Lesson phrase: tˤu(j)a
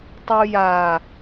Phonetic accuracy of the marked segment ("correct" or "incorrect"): correct